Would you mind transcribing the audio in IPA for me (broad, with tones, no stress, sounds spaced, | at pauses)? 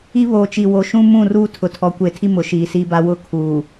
i˦ β oː˨ t͡ʃ i˨ w o˨ ʃ ũ˦ m ũ˦˨ r uː˦ tʰ ʊ˨ tʰ ɔ˨ kʷ e˨ tʰ i˦ m ʊ˨ ʃ iː˨ s i˦ b a˦ w ʊ˦ kʰ uː˨